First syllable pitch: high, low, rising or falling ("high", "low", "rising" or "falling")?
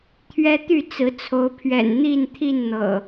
high